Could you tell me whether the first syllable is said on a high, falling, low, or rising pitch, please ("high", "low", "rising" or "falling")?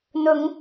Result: rising